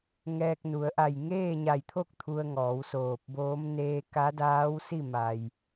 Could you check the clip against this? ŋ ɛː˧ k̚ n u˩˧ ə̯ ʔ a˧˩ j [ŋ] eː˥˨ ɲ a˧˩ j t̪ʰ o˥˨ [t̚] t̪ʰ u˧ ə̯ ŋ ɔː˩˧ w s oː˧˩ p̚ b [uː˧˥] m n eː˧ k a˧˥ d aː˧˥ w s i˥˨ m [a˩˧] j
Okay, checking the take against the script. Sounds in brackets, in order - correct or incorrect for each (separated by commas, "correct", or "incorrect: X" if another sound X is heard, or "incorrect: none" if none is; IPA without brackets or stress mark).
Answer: correct, incorrect: k̚, incorrect: oː˧˥, incorrect: a˩